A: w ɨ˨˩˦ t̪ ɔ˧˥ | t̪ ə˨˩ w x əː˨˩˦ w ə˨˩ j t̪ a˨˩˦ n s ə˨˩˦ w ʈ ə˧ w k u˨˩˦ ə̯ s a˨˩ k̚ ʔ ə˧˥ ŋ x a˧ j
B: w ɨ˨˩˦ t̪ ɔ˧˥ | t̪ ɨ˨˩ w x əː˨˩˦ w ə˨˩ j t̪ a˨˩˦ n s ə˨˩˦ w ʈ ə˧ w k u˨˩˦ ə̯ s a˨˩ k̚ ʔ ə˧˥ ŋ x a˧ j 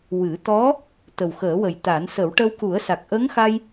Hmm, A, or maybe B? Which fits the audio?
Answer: A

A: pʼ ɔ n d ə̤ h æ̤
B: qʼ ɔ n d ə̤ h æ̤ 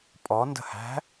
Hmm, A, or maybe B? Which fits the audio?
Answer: A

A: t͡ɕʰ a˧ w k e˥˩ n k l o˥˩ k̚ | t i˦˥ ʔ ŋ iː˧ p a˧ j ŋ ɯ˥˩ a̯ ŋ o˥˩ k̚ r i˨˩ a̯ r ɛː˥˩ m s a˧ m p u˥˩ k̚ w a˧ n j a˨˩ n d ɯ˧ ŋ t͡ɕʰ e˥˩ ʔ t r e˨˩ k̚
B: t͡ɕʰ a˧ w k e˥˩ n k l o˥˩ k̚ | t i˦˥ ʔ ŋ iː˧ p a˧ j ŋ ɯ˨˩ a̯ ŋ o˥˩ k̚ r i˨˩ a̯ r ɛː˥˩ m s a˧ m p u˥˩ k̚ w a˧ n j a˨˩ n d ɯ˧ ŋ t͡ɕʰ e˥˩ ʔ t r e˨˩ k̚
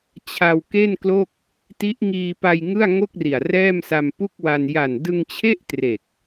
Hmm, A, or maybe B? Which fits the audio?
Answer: A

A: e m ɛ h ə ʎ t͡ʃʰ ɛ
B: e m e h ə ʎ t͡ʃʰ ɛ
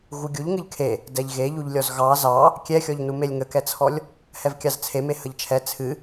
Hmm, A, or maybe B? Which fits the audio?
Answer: B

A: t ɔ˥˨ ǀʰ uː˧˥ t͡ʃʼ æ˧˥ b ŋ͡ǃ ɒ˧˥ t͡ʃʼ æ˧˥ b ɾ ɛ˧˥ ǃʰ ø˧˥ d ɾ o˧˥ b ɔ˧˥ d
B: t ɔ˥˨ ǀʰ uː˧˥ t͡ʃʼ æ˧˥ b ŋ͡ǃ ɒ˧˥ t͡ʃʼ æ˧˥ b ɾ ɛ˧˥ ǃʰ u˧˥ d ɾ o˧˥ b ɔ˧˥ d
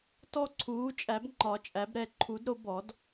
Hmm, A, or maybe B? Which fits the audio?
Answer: B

